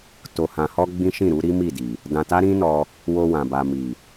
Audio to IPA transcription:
t o˨ h ã˨ h ɔ˧ ɡ͡b ĩ˦ ʃ ĩ˦˨ ɾ u˨˦ ɾ i˦ m i˦˨ d i˨ | d ã˧ t a˦ ɾ ĩ˦ n ɔ˧ | w o˧ w ã˨ b a˨ m i˨

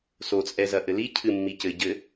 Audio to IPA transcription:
s o t͡sʼ ɛ z ɐ ʔ ɘ l i cʰ ɨ mː i c ɘ ɟ ɘ

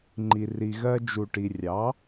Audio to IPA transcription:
ŋ͡ǃ i˩ r i˩ ɣ ɜ˧ d͡ʒ u˩ ʈ i˩ rʲ ɑ˩˥

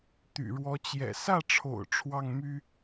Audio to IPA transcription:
t̪ y̰˨˩ ɻ w ɔ˧˥ t͡ɕ j ɛ̰˨˩ s ä˥˩ ʈ͡ʂʰ o̰˨˩ ʊ̯ ʈ͡ʂʰ w ɑ˥˩ ŋ m y˥

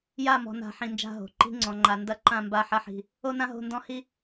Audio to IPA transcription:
j a˦˨ m ɔ̤˨ n a̤˨˦ ħ ĩ˨ n d͡ʒ a̤˦˨ ɦ o̤˨ ǃ i̤˦ ŋ͡ǀ ɔ̃˨ ŋ͡ǃ a˨ n d ɐ˦ ǃ ã˦˨ m b a˦˨ ħ ɐ˦ ħ i̤˨ | o˦ n ã˦ ɦ o̤˦˨ n d ɔ̃˦ h i˦

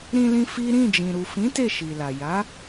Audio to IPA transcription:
ɾ ĩ˧ l ĩ˧ f i˦ ɾ ĩ˦˨ d͡ʒ ĩ˨ ɾ u˨ f ĩ˨˦ t e˦˨ ʃ i˨ l a˨ j a˨˦

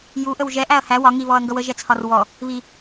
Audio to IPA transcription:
j u ʔ ə w ʒ ɛ ʔ æ ɐ̯ h æ w ɒ ŋ i β ɔ ɐ̯ ŋ ɡ ʌ w ə ʒ ɛ t͡sʰ ɒ r w ɔ | β i

